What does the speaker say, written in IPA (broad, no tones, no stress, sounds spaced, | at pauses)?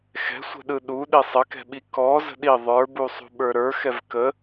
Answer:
x ɛ̤ sʷ ə̤ ɗ ɯ ɗ u ɗ i sˤ ə k ɛ̤ ɓ i k ɔ z ə̤ ɗ i ðˤ ə˞ b u sˤ ṳ ɓ ə˞ ɾ ə˞ x ɛ v k ə